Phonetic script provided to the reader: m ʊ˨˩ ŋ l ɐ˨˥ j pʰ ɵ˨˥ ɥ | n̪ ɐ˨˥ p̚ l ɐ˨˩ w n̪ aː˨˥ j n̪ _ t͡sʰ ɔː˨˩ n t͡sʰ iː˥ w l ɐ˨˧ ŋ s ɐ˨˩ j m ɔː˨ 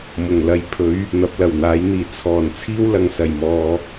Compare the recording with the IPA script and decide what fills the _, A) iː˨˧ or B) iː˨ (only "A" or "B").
B